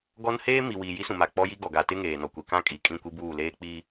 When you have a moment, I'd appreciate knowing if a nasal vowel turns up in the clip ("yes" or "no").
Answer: yes